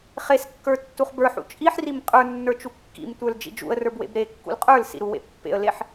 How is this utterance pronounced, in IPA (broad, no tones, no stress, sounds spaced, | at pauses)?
χ e s kː ə˞ tː u χ b ə˞ ħ ṵ t͡ʃʼ i ħ r i m qʼ ə˞ nː ə˞ t͡ʃ u kː ḭ m tʷ ə˞ l d͡ʒ ḭ d͡ʒ ṵ ə̯ r ə˞ b w ḛ b ɾ e kː ṵ l qʼ ə˞ l s ḭ ɾ u w ḛ pː ḛ ə̯ l e ħ